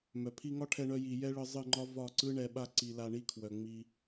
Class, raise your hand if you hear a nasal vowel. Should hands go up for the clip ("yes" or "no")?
no